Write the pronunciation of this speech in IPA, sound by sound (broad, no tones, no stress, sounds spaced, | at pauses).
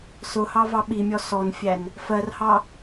s ʊ h ɑ v ɑ ɓ i mʲ ɔ s ɔ n fʲ æ n | f ɜ r h ɑ